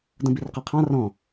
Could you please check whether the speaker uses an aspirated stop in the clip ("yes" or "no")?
yes